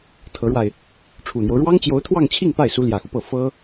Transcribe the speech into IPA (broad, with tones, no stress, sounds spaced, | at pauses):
t̪ʰ ɤ˧˥ ɻ w a˧ ɪ̯ | ʈ͡ʂʰ u˨˩ n̪ j o˦ ʊ̯ ɻ w ɑ˥ ŋ t͡ɕ j o˧˥ ʊ̯ t̪ʰ w ɑ˥˧ ŋ t͡ɕʰ i˥˧ ŋ p a˥˩ ɪ̯ s u˧˥ l j ä˨˩ x u˦ p ɤ˥˩ f ɤ˥